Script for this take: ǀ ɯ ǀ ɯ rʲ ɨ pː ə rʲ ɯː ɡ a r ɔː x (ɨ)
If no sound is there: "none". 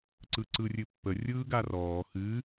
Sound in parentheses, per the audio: ɨ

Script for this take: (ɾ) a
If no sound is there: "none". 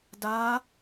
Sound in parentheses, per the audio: d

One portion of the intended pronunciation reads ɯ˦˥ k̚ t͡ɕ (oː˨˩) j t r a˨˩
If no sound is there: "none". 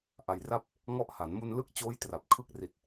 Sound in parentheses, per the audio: oː˦˥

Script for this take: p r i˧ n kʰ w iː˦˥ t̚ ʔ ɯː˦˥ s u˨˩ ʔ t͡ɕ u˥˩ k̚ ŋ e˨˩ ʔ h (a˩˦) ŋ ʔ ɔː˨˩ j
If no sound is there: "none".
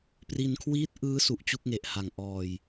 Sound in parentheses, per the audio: a˨˩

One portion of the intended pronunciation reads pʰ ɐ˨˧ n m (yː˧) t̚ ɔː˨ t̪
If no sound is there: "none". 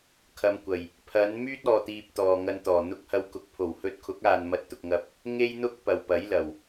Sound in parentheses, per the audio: yː˥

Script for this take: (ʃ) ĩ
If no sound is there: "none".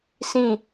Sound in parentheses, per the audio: s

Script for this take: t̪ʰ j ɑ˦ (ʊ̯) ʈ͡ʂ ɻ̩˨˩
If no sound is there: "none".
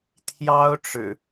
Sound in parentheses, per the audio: ʊ̯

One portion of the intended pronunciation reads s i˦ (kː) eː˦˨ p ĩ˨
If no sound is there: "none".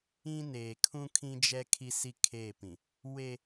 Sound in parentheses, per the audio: kʰ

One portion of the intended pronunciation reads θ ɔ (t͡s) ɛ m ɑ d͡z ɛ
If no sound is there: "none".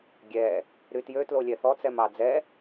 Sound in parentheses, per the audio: t͡s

